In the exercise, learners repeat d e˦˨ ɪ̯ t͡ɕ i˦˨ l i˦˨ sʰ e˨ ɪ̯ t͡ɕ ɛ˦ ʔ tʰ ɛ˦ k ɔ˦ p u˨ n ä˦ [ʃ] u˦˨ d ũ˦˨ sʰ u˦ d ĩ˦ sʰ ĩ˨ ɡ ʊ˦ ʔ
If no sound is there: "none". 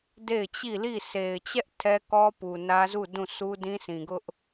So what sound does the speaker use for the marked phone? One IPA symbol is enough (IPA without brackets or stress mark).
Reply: z